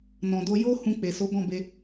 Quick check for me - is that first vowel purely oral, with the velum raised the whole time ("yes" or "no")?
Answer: no